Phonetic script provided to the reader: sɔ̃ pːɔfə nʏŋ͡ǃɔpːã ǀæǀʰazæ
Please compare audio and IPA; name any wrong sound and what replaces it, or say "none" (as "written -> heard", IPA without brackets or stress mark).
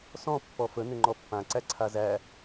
none